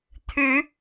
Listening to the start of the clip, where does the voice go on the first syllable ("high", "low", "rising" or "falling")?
rising